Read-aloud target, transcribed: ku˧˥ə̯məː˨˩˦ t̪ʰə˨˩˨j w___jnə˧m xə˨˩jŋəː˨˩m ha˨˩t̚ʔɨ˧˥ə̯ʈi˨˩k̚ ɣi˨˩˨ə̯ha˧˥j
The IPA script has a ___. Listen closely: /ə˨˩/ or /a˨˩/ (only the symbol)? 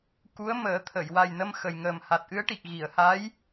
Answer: a˨˩